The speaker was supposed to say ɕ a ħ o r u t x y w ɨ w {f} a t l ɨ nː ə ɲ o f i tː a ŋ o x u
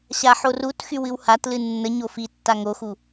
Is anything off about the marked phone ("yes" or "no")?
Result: yes